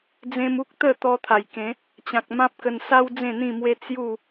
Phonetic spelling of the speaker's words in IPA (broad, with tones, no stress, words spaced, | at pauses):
d͡zẽ˧mu˦k̚ t̪ə˥˧ t̪ɔ˧t̪ʰa˨˩jkẽ˨˦ | t͡ɕã˨k̚mã˦p̚kə˧n sa˦w d͡zẽ˥˧n̪ĩ˥˧mwe˦ t͡sju˥˧